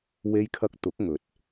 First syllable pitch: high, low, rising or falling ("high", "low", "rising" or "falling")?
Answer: high